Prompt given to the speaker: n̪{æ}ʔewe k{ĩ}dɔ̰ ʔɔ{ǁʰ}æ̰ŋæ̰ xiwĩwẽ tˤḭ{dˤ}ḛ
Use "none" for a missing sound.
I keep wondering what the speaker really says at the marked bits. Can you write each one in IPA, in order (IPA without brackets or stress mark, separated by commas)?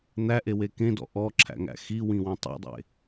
æ, ẽ, ǁʰ, dˤ